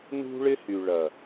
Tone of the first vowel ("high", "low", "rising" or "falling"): high